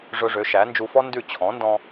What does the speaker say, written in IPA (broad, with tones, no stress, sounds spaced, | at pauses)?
ʐ ɵ˧ ʐ ø˩˥ ʃ æ˩˥ n d͡ʒ u˧ f ɔ˥ n d ʉ˥˩ t͡ɕʰ ɔ̃˩˥ n d ɔ̃˧